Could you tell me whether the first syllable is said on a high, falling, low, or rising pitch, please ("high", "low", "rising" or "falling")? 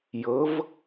rising